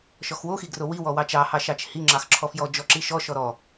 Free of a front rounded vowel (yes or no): yes